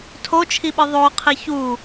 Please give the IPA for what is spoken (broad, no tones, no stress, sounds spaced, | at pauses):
tʰ o t͡ʃʰ i ɓ ɨ ðˤ o qʰ i ç u